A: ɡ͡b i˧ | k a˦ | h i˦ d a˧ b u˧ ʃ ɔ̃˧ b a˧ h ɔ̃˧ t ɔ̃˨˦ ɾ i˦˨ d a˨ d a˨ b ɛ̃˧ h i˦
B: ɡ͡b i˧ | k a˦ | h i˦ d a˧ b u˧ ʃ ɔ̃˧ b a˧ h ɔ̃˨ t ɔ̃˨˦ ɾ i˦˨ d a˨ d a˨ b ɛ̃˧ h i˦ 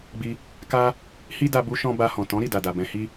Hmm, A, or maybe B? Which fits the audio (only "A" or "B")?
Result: B